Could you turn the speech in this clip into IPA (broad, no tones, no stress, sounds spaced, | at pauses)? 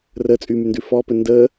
r ə t͡sʼ y m y n d ʉ f ɔ p ɘ n d ə